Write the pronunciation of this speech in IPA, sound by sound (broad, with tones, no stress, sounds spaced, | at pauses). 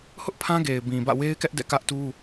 h ʊ˦ ʔ pʰ ã˦ ɡ e˨ ɪ̯ b ĩ˨ b ä̰˦˨ w e˦ ɪ̯ k ɛ˦ ʔ d ɛ̰˦˨ k ä˦ ʔ t u˦